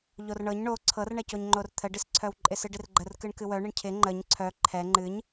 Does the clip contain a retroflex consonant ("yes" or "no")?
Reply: yes